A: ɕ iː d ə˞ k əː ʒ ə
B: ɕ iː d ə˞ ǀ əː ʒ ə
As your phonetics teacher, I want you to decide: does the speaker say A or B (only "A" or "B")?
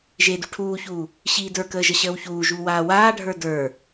A